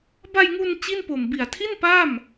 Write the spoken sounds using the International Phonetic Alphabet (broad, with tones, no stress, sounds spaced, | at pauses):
b a˧ j ŋ u˧ n t͡ɕ i˥˩ n p o˨˩ m b i˨˩ a̯ tʰ i˥˩ n p a˥˩ m